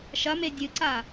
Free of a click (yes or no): no